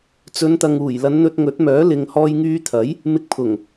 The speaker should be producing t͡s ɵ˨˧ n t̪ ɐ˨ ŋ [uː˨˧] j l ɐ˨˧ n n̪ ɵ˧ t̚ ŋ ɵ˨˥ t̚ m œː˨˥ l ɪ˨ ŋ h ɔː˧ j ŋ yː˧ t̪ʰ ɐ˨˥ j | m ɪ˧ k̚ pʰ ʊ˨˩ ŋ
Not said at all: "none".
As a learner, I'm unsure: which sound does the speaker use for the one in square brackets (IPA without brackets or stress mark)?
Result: uː˨˩